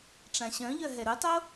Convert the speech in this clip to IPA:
ʈ͡ʂãɕœ̃ʎœ ɦɛɾutˤo

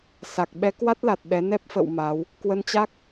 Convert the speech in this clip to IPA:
sa˨˩k̚ɓɛ˨˦kwa˦˥t̚la˨˩t̚ ɗɛ˨˦nɛ˦˥p̚fə̰˧˨w maː˨˦w | kwə˧nt͡ɕa˦˥k̚

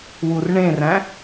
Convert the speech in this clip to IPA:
wurɳẽræ̃

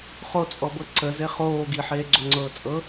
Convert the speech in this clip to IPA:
χot͡sʼɔbɤ ǀəze χoː ɡiħeːɡ͡ǀoŋ͡ǀɤː t͡sʼɤ

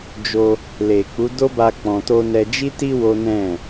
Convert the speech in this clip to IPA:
d͡ʒo˧ | le˨ k͡pu˨˦do˦ba˧ k͡pɔ̃˧to˦ nɛ˧d͡ʒi˦ti˦ wo˦nɛ̃˦˨

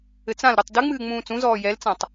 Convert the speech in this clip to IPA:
ɘt͡sãlɾotˤ dɨŋ͡mɨː ŋ͡mũːt͡sũzɔː jɛlt͡sãtˤ

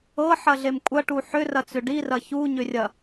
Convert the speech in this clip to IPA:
ɤħɐɮem kʷʼɐʈu ħʏrɐt͡sʏ ɖirɐ çuɲʏrʲɐ

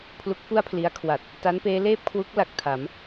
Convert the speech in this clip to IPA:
pʰlu˦˥k̚fu˥˩a̯pʰli˧a̯ kʰwa˨˩t̚ | ta˦˥npeː˦˥leː˥˩p̚kʰwu˦˥k̚ la˨˩k̚tʰa˩˦m

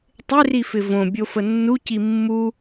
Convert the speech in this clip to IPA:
tˤɪrifɪ võbʲofə nːuci mːu

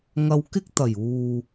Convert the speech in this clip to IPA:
ŋɐ˧wkɪ˥k̚t̪ɐ˨˩juː˨

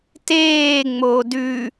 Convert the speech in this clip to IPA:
teː ŋ͡moːdʉ

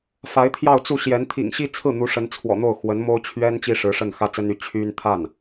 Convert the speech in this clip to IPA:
fa˧˥ɪ̯t̪ʰjɑ˥˧ʊ̯t͡su˥˩ɕjɛ˧˥n t̪ʰḭ˨˩ŋɕi˥t͡sʰɹ̩˥˩n̪u˧˥ ʂə˧˥nt͡sʰwɔ̰˨˩n̪o˥˩ʊ̯ xwə˧˥nmo˥ʊ̯ t͡ɕʰɥɛ˥n t͡ɕi˥ʂɻ̩˧˥ʂə˥˩n xä˥t͡sə˥ny˥˩ t͡ɕʰy˥n t̪ʰa˥˩n

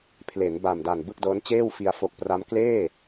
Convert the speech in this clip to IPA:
pʰle˩˦n ba˨˩mda˨˩n bɯ˥˩k̚dɤː˦˥nt͡ɕeː˥˩wfi˧a̯ fo˨˩k̚ pra˦˥m kleː˥˩

